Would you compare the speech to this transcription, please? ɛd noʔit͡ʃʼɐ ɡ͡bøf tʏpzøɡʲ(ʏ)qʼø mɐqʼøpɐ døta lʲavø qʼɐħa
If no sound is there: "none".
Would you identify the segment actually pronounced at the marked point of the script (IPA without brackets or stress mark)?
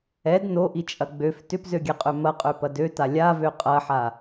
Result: ɛ